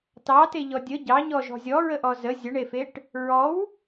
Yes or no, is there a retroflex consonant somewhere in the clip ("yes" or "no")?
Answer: yes